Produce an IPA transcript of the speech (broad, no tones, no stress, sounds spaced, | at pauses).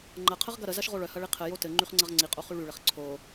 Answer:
ŋ͡ǃ ɐ qʰ ə ʁ ɡ ɐ ɾ ə z ɐ ʃ ʁ o ɭ œ h ɐ ɭ i qʰ ɘ j o t ɘ ŋ͡ǃ y χ ŋ͡ǀ ɐ ʁ ŋ͡ǀ i qʼ o χ y ɭ y ɭ ɘ χ ǀʰ o